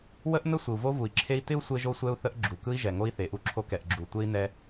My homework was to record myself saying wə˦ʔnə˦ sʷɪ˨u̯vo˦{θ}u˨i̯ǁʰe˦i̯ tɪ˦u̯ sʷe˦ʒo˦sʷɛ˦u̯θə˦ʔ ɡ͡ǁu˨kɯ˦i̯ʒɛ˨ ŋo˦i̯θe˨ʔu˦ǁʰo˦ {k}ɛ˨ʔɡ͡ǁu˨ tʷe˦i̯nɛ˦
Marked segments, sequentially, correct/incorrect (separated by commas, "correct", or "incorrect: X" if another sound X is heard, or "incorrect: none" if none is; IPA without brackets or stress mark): incorrect: v, correct